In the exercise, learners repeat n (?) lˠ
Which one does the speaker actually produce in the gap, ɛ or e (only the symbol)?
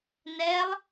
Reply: ɛ